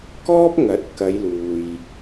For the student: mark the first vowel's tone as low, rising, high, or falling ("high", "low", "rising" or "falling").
high